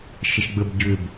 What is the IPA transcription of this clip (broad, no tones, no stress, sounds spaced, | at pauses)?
ʃ ə ʃ ɡ͡b ə b ɟ ʏ b